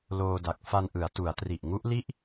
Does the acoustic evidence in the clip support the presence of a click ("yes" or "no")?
no